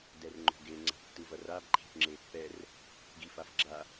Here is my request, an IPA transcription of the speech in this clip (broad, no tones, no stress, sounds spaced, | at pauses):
d ɛ r ŋ͡ǃ o̤ ɡ e ŋ͡ǀ a̤ ʈ tː ɯ v ʌ r a b ǃʰ e̤ ʈ ŋ͡ǁ e pː ɛ r | ɡ i f a f ɡ͡ǁ a